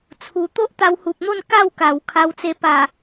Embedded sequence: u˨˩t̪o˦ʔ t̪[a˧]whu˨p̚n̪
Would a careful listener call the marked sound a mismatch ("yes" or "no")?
no